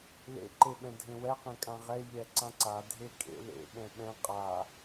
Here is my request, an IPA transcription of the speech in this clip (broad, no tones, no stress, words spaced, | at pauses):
lḛ ǃeɓɛ̃dʱẽwɛ qẽkʼãʁɛ ʎɛǀãǀa dʱekʼḛ lḛ ɓɛ̃ɓɛ̃ qʼa